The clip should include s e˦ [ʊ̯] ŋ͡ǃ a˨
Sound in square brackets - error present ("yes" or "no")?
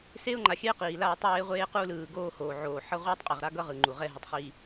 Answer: no